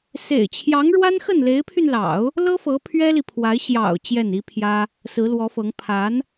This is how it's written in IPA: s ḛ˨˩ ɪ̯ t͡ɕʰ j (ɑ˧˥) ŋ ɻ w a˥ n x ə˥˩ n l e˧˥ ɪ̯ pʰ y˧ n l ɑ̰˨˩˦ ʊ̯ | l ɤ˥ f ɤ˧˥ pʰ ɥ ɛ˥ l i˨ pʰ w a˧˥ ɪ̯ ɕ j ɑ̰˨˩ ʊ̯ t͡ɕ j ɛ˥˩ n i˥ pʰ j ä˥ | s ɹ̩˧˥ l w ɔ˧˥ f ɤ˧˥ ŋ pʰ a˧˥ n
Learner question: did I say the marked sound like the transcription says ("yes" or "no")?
yes